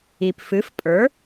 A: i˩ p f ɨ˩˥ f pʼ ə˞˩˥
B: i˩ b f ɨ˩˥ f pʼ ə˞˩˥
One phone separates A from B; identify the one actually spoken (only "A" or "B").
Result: A